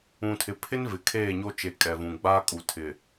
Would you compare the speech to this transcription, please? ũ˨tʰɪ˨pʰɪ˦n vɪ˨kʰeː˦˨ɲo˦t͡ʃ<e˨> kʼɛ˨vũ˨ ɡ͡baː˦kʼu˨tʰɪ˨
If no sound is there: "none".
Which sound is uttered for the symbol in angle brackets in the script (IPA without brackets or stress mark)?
e˨